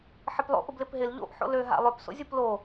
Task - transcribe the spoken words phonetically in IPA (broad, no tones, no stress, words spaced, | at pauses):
ħɪplˠo̰ʔ ʊblɪpɦɪl ʎo̰ʔ ħo̰lø ɦa̰lˠøpso̰ zʲuplo